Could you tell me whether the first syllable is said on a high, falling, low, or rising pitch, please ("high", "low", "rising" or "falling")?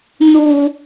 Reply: low